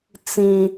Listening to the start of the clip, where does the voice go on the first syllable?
high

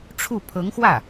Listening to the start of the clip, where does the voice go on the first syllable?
falling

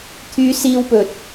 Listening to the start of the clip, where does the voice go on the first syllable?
high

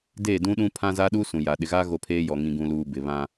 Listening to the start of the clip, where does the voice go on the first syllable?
falling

